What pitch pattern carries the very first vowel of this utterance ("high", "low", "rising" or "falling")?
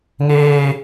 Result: high